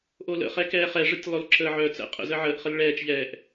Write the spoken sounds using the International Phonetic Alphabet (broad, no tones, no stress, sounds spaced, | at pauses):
ʔ o l ə̰ χ ɛ k ɛː χ ɛ ʐ ə tʲ lˠ o l ǁ əː ʕ œ t͡s ɛ̰ qʼ ə̰ z ə ʕ əː ʔ χ ə l ɭ ɛː t͡ʃ ʎ ɛː ʔ